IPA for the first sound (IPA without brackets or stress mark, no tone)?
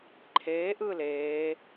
ǃʰ